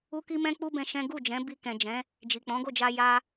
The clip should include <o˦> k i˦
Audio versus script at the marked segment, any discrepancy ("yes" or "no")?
yes